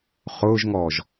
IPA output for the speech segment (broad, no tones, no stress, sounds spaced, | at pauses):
χ ʊː ʒ ŋ ɔː ʒ